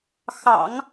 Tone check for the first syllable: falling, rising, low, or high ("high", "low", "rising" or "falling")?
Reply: low